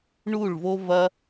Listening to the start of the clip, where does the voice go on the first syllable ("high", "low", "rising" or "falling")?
falling